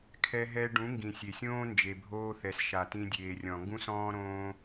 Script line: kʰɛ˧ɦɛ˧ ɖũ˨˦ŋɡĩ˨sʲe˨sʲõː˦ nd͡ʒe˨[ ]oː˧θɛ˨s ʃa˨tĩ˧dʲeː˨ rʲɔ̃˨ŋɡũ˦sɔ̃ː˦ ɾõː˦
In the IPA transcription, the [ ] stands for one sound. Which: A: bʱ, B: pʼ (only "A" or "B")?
A